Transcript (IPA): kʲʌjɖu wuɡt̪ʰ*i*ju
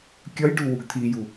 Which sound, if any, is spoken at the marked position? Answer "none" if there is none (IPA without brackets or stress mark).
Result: i